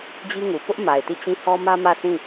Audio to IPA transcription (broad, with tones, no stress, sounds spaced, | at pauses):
d͡ʑ i˦ ŋ u˨ p ʊ˦ ʔ m a˨ ɪ̯ t i˦˨ t͡ɕ ĩ˦˨ h ɔ˦ m ä˦ m ä˦˨ sʰ ĩ˦˨